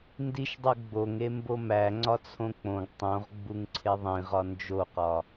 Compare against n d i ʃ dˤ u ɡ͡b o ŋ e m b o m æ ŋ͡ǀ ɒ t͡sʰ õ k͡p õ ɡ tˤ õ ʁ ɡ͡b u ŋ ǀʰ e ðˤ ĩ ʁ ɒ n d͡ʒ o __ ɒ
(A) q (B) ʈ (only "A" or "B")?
A